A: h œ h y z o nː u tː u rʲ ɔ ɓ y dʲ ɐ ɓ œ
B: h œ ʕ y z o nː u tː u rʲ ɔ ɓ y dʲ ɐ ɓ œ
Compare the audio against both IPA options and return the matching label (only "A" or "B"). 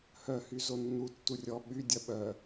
A